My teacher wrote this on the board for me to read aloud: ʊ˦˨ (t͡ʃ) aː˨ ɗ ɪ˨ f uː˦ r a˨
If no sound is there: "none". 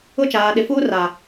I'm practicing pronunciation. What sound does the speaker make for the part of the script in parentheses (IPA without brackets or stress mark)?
t͡ʃ